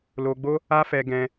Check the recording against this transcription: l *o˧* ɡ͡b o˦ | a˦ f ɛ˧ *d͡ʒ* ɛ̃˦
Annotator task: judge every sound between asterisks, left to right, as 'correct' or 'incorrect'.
correct, incorrect: ɡ

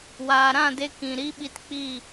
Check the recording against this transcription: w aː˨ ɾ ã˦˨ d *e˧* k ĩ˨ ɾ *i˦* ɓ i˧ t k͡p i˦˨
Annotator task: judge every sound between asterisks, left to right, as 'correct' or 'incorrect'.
correct, correct

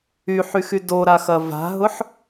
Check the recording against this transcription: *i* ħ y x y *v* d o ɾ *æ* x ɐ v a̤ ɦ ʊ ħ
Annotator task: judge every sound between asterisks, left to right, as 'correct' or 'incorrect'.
incorrect: y, incorrect: none, incorrect: a

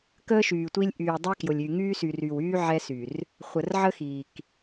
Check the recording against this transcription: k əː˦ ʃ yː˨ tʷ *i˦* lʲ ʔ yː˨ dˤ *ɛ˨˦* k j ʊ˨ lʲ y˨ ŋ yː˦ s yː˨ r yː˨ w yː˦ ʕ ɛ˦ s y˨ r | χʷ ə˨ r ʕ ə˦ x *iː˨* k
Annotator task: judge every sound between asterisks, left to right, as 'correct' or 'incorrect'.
correct, incorrect: ɛ˦, correct

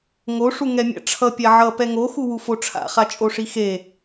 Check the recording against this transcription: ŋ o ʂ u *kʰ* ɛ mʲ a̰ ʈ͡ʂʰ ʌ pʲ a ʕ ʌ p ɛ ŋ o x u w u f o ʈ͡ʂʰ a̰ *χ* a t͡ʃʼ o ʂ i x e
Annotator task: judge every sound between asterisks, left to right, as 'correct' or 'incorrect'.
incorrect: ŋ, correct

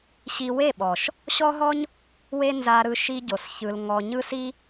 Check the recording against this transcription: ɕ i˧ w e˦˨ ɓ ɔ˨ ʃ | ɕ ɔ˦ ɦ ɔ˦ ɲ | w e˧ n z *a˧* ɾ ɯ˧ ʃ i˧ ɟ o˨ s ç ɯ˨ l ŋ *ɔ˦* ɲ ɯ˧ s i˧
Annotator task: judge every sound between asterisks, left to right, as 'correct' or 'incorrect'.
correct, incorrect: ɔ˨

